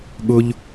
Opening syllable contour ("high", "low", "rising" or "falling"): high